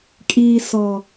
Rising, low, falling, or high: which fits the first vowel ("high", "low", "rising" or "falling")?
low